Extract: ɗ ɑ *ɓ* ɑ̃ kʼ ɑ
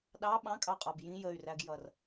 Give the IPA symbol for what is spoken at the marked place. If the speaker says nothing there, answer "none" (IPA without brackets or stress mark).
ɓ